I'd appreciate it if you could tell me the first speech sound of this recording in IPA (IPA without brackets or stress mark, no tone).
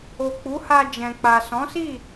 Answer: o